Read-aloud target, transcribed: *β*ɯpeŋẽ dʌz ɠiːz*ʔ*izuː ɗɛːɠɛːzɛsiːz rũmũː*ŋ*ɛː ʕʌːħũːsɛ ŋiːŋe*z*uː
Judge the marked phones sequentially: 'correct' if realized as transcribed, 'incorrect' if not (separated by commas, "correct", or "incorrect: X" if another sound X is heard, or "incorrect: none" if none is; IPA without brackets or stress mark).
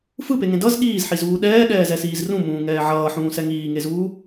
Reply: incorrect: f, incorrect: ħ, correct, correct